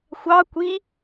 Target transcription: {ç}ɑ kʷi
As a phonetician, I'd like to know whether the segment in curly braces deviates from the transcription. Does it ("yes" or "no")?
yes